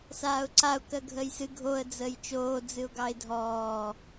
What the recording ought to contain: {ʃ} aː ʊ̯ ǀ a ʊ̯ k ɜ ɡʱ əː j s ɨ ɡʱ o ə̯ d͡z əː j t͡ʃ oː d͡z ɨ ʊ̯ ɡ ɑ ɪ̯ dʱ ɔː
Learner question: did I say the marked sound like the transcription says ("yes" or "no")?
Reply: no